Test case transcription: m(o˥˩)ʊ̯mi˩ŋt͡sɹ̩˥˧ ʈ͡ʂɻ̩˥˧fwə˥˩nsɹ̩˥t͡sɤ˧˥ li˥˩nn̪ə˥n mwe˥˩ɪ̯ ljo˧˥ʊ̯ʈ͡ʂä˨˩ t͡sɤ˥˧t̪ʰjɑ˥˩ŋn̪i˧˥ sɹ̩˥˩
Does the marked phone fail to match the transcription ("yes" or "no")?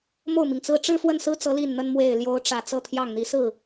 no